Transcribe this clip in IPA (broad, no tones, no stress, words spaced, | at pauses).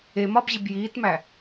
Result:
e mɒbʑib jiːtmæ